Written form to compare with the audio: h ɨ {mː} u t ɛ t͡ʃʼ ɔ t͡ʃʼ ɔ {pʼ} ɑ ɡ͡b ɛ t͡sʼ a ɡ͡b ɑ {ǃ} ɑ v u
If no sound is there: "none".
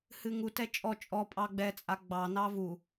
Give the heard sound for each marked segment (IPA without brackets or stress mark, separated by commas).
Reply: ŋ, pʼ, n